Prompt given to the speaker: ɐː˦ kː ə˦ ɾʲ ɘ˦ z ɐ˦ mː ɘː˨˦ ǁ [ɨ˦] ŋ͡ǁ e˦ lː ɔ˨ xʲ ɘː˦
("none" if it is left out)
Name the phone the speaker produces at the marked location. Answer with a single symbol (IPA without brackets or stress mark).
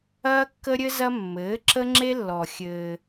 ə˦